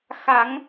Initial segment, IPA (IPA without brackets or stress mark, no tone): x